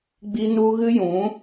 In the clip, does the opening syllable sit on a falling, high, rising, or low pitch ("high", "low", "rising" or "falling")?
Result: high